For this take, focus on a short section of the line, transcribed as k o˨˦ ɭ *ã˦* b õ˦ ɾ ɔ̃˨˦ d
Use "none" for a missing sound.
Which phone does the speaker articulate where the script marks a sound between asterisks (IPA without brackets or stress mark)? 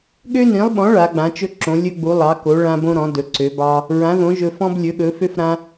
ã˦